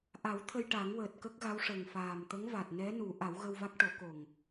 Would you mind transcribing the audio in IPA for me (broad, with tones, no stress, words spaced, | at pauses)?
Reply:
ʔa˨˩˦w t̪ʰə˧jʈa˨˩˦ŋ wəː˨˩t̚kə˦˥k̚ɣa˧˥w ʂə˨˩ŋfaː˨˩mt̪ə˧˥ŋ va˨˩t̚ nɛ˧˥nu˨˩˦ ʔa˨˩˦wɣə˧wva˦˥k̚ ʈo˨˩˦ko˨˩ŋ